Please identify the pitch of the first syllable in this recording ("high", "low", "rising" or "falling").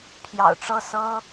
low